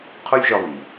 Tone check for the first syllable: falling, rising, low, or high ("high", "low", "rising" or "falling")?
high